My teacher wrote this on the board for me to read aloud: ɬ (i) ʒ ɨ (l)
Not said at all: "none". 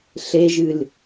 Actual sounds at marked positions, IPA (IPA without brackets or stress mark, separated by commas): e, l